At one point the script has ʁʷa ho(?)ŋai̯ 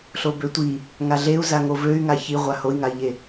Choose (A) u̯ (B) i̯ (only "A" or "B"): B